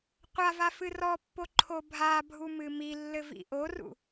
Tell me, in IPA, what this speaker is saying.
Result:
qʷava fɨrɔpːo ǃʰobʱabʱu mɨmilːɘ vḭʔorṵ

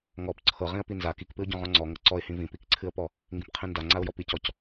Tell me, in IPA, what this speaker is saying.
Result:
ŋɔp ǀʰɤ ʁĩə̯pinza kikpɨʊ̯ɟɔ̃ʁɔ̃ ŋ͡ǀɔ ŋɤǀɔɪ̯hĩ vĩpikǀʰɨə̯pɔ | ŋɡĩpqʰĩnda ŋ͡ǀaʊ̯jɔpicɔc

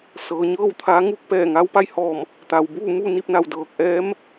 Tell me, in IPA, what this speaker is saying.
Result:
sɤː˩˧ ɲɤː˥˨wt̪ʰaː˧˥ ŋuː˥˨k̚ pɛː˧˩ ŋaː˧˥wpa˧jhɔː˧˩m | t̪a˩wbuː˥˨muː˥˨ ni˥˨p̚na˧˩wdɤː˧˩k̚ʔɛː˧˥m

